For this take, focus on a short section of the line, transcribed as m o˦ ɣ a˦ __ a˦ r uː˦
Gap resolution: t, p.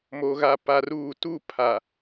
p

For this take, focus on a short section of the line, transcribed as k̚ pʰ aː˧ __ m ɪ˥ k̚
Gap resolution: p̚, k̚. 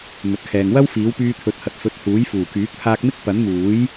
k̚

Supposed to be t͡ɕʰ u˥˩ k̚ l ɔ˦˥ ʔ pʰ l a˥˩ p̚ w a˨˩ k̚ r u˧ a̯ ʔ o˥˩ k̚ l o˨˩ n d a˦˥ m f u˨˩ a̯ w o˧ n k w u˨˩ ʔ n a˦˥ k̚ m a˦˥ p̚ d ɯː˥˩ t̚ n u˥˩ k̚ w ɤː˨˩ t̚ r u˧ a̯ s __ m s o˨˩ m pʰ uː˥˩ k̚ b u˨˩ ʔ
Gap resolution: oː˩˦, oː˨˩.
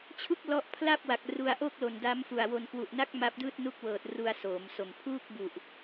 oː˩˦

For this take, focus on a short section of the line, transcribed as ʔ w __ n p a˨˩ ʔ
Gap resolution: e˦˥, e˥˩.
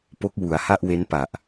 e˦˥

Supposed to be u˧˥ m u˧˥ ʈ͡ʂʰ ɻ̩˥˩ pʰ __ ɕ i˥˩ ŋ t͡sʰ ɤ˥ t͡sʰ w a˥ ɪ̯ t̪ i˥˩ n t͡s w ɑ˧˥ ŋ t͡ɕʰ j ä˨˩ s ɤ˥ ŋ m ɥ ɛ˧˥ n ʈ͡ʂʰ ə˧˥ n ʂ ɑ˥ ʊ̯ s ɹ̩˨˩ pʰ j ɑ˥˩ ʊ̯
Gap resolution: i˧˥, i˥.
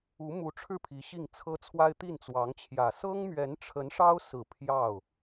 i˧˥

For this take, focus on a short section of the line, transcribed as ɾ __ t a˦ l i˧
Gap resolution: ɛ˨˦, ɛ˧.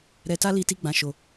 ɛ˧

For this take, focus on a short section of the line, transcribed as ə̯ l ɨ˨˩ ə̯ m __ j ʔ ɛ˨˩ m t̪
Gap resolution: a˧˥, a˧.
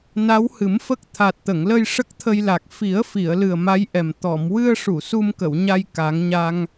a˧˥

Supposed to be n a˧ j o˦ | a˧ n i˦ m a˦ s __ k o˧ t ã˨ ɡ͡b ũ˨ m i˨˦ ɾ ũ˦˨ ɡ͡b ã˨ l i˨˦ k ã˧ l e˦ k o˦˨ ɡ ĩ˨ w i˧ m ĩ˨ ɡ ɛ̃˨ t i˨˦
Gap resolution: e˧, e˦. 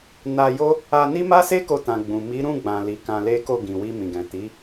e˦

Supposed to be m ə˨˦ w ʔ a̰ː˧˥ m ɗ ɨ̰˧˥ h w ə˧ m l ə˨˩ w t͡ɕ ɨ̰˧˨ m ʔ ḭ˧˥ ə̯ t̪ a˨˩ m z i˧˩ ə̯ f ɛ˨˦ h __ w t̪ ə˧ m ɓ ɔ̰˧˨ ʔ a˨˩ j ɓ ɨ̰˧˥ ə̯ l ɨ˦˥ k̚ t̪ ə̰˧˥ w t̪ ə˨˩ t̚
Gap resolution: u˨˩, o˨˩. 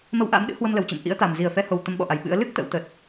o˨˩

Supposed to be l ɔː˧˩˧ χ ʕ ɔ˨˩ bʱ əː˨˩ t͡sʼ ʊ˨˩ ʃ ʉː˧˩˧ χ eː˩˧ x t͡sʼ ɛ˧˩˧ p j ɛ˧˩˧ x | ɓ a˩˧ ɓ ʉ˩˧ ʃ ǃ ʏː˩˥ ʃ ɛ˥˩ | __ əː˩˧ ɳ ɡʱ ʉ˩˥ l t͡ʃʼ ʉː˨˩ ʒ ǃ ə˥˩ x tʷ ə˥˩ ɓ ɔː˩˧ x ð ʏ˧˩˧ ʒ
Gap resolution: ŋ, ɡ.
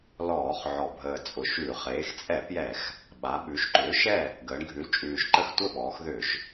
ɡ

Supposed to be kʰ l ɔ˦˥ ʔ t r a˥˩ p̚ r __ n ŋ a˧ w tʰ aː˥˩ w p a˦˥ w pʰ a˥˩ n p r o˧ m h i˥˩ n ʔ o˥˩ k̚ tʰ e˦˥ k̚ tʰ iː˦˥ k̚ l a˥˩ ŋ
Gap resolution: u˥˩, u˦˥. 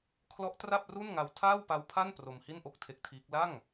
u˥˩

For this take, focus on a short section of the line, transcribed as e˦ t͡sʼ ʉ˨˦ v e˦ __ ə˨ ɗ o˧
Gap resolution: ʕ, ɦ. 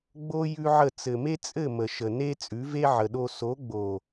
ʕ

